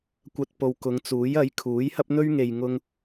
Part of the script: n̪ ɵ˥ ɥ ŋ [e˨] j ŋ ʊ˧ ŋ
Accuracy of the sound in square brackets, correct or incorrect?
correct